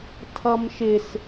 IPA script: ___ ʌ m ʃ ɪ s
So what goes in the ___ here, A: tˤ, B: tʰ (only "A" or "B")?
B